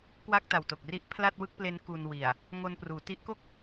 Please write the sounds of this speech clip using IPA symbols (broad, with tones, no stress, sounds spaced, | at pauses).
k w a˥˩ k̚ t a˨˩ w t o˨˩ k̚ r i˥˩ ʔ pʰ l a˥˩ t̚ w ɯ˥˩ k̚ p l e˦˥ n k u˧ n w i˨˩ a̯ | ŋ o˧ n p r uː˩˦ t i˦˥ ʔ k o˥˩ k̚